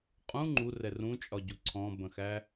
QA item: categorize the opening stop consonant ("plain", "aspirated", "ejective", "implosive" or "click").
ejective